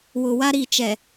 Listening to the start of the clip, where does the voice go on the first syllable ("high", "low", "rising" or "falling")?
low